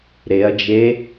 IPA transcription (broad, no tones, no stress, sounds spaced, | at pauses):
ɾ e ɐ̯ d͡ʒ e